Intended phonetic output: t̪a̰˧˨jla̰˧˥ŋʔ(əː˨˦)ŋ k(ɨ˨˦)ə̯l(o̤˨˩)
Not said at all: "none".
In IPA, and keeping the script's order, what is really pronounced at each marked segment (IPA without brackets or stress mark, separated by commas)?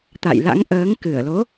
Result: əː˨˦, ɨ˧˩, o˨˦